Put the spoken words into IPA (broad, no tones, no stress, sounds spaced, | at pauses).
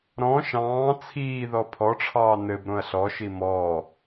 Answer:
ɾ ɔ̃ ʃ ɑ̃ː t͡sʰ iː ð ɔ pʰ ɔ ʈ͡ʂʰ ɑː n ɘ b ɾ õ ɐ̯ ɬ ɔ ʃ i m ɔ